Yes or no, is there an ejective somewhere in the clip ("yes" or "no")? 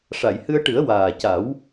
no